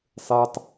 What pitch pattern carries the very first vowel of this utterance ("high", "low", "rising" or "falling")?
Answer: high